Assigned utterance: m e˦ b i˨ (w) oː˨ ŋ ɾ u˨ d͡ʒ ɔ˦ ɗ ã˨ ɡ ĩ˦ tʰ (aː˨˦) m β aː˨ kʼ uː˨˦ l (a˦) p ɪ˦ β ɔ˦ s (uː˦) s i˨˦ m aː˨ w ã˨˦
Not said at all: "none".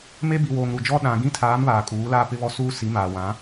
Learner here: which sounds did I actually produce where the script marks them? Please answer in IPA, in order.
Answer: w, aː˨˦, a˦, uː˦

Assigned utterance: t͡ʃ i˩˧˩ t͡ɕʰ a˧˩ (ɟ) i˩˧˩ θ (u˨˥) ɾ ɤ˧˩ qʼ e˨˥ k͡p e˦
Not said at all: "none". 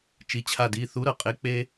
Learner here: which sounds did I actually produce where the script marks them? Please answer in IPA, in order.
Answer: d, u˨˥

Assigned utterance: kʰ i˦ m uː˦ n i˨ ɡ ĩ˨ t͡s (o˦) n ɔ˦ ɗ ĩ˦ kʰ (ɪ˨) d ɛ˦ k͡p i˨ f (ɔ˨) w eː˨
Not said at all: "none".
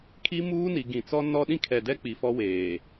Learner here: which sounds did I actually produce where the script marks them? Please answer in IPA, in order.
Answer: ɔ˦, ɛ˨, ɔ˦

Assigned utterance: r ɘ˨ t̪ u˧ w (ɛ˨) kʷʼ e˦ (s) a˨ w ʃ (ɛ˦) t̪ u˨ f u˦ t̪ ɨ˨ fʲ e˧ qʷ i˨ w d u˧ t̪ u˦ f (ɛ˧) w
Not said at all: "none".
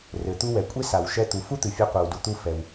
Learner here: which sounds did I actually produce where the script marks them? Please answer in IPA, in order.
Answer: ɛ˨, s, ɛ˧, ɛ˧

